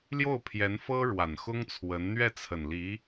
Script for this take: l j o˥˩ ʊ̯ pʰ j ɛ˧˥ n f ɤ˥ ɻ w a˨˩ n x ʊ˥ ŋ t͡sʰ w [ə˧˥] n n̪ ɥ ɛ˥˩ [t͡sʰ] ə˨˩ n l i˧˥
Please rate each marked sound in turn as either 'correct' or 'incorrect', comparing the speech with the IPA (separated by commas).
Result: correct, correct